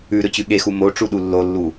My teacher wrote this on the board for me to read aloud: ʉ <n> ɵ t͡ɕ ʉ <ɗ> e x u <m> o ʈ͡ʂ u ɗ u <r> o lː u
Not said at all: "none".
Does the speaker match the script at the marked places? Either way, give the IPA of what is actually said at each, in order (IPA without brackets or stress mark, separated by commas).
ɾ, ɠ, m, lː